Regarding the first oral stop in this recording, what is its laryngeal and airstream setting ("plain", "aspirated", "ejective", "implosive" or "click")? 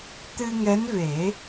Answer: plain